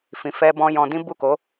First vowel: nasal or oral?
nasal